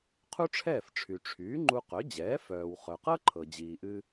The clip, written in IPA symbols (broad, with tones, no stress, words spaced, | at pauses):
qʰu˥ʈ͡ʂʰɛː˥˩fʈ͡ʂʰy˩ ʈ͡ʂʰyː˩˥ŋ͡ǃu˧qœ˩˥d͡ʑɛː˩˥ fœː˩w χœ˩qɤ˥ǃʰɤ˩ d͡ʑiː˩ʔɨ˧